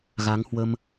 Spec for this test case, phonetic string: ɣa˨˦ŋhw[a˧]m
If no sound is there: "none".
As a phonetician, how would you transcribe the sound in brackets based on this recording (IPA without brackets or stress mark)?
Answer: ə˧